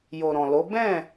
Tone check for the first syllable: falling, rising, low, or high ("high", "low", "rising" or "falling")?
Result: low